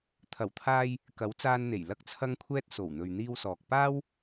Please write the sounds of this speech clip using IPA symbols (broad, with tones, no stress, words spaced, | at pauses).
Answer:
t̪ʰɐ˨˩wt̪ʰaː˧j | kɐ˨˥wt͡saː˧nn̪e˨˩j lɐ˧k̚t͡sʰɐ˧ŋkʷʰɛː˧t̚ so˨˩wn̪ɵ˨ɥ n̪iː˧wsɔː˨k̚ paː˥w